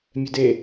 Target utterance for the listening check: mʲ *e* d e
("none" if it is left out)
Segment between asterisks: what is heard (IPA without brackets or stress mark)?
ɛ